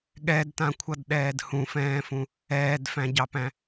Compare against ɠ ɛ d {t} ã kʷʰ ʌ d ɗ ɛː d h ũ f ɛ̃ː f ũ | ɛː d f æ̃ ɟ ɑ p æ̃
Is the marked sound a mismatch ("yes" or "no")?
no